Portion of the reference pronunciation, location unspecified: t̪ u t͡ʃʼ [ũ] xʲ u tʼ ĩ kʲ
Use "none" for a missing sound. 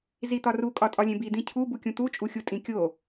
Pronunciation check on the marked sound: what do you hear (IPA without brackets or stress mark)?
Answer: u